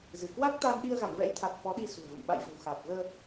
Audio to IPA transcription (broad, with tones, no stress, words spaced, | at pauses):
zɨ˧˩kwa˦˥k̚t̪a˧n ɗi˧ə̯ɣa̰˧˨mvɛ̰˧˥jt̪ʰa˨˩t̚ fɔ˨˦ɗi˧sṳ˨˩ə̯və̰˧˨m ɓa̰˧˨jvə̤˨˩wxaː˨˩p̚ ɣəː˧